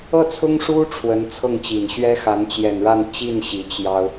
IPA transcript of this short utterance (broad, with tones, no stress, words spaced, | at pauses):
ɤ˥˩t͡sʰʊ˥ŋʂu˥ ʈ͡ʂʰwə˧˥nt͡sʰɤ˥˩ŋt͡ɕi˨˩n ɕɥɛ˥xa˧˥n t͡ɕjɛ˨˩nɻa˥˧nt͡ɕi˥˩n ɕi˧˥t͡ɕjɑ˥ʊ̯